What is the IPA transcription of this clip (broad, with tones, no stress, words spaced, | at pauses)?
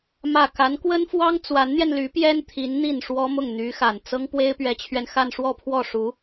mä˥˩ ka˧˥nkwə˥nfwɑ˥ŋ t͡swa˧˥nn̪jɛ˧nly˧˥ pjɛ˥nt̪ʰi˧˥n n̪i˥˩nʂwɔ˥mʊ˥˩ŋ n̪y˧˥xa˨˩n t͡sɤ˥ŋ pwe˥ɪ̯pɥɛ˧˥t͡ɕʰɥɛ˧n xa˥˧nʂwɔ˥˧pʰwɔ˥˩ʂu˧˥